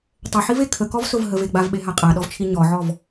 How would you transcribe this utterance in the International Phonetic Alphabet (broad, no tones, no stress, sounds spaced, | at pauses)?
tˤ ə ħ i v e kʰ ə k ɔ v s ʊ v ɦ ə v e ɡ͡b a v ɓ e ɦ a qʼ a ɗ ɔ v t͡ʃʰ i ɲ ɔ ʕ ɔ v